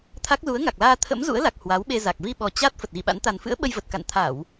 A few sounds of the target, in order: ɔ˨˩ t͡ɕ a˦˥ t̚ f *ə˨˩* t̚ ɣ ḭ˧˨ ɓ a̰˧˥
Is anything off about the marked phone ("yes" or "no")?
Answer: no